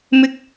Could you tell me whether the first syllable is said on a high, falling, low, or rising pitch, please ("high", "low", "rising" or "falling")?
low